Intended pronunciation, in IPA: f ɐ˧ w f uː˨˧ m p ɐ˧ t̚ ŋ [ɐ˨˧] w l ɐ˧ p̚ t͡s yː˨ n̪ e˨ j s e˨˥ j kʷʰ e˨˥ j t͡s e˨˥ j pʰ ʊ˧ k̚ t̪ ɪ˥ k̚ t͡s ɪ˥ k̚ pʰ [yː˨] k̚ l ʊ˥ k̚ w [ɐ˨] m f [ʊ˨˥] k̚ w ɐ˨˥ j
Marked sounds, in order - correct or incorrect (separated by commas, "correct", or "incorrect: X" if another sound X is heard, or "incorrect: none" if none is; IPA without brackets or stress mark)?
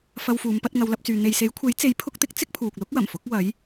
correct, incorrect: uː˨, incorrect: ɐ˨˩, correct